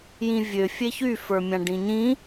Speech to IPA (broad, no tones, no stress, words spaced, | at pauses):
jĩvʲø fʲeçyfə˞mʲã ɖĩɲĩ